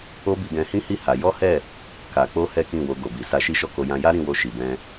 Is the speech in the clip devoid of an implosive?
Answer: yes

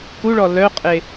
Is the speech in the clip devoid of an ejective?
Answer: no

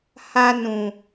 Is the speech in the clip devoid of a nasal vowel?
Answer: no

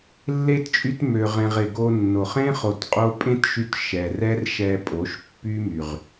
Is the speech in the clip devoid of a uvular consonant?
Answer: no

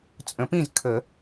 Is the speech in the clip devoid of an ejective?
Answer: no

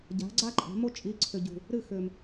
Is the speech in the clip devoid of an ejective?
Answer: no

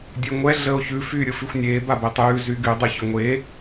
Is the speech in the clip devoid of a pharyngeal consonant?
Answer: yes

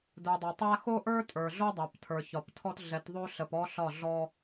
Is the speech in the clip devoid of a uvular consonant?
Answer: yes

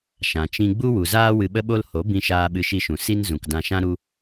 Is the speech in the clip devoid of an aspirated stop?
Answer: yes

